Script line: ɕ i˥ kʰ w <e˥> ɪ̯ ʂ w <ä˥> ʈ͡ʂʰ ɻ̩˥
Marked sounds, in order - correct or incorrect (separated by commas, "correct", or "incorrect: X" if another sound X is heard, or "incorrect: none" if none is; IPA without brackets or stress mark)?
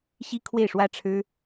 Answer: incorrect: e˥˩, correct